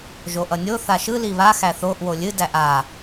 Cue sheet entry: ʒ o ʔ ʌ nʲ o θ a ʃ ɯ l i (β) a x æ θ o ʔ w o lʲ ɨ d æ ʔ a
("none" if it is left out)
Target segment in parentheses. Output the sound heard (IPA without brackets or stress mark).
β